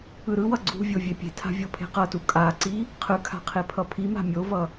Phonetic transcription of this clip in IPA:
ɯɾɯwʌ ɡ͡ǀṳvʲo vʲepʲe̤tʰa̤ vʲopʰe̤qʌtu kʼaǀi | qʰɯkʰa̤ qʰepʰʌpʰima̤ mʲovʌ

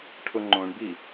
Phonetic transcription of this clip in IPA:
ʈʰʊŋ͡ǃõɳbi

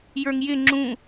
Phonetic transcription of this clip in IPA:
jə˞ŋjɪ ŋ͡ǁũ

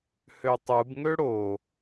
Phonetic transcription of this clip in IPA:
høtˤɯb ŋøɽo

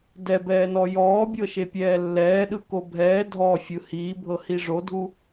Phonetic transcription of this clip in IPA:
dɛbɛːnɔ jɔːbʲɤʃepʲɛː lːɛːɗɯko bʱɛː dʱɔfʲɯ hiːbʱɤhi ʐodʱu

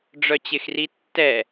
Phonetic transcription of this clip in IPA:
ɖ͡ʐœt͡ɕɪxri tːɛ

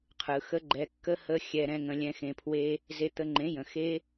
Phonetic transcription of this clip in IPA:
qʰɯ˨xə˦ ɡ͡ǃɛ˨kːə˦ hə˧ xʲɛ˨ɾɛ̃˧ŋə̃˨ lʲɛ̃˨xẽ˨pʰwe˧ | ze˧t̪ə˧ŋ͡ǃẽ˨˦jə̃˨ xe˦

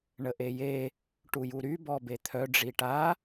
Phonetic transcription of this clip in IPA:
ɳəʔeje | ʈujuɾy bɔbet̪ʰœ ɖ͡ʐiʈa

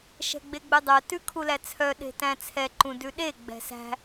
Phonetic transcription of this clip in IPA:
ʃɛ̤ɡ͡beɡ͡bødˤœ tʉkʰulæt͡sʰœ ɗe̤tæ̃t͡sʰɛ ǃũdʉɗe ɡ͡bɛ̤sæ̤

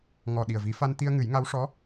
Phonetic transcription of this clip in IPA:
ŋɔ˨˩ ɗi˨˩ə̯vi˨˩˦fa˧n t̪i˧ə̯ŋɨ˨˩˦j ŋa˧˥w ʂɔ˧˥

